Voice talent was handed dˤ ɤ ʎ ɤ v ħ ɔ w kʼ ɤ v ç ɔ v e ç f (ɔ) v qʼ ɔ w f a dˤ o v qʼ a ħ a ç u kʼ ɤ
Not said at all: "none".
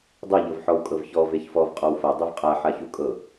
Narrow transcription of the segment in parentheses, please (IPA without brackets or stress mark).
ɔ